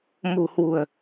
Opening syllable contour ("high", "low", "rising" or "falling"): low